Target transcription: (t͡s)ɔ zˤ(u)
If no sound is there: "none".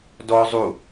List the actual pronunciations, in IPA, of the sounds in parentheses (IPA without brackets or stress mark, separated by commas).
d, u